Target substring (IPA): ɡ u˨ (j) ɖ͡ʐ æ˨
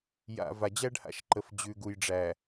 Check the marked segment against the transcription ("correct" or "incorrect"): correct